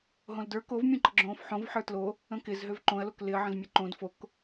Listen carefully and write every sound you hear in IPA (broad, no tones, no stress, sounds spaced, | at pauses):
ɦ õ l d ə˞ k o v mʲ ũ ǃ ə ɡ͡ǁ õː f ħ õ v ħ ə˞ t l o | ə̃ k ɪ z ɦ ø v ǃ õ ɐ̯ l o k l ɪ ɐ̯ ʕ ə̃ z mʲ ə ǃ õ d f o k